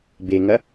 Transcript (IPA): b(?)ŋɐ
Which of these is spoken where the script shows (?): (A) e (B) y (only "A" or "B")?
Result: A